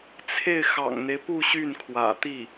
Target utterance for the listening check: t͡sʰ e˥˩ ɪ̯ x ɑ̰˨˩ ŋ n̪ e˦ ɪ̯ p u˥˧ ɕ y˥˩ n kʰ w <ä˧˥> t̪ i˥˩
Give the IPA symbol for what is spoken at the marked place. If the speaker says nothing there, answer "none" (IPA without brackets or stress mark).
ä̰˨˩